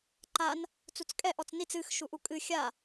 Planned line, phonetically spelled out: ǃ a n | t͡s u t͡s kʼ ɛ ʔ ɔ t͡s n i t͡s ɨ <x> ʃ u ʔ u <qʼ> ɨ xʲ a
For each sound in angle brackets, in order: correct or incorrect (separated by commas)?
correct, incorrect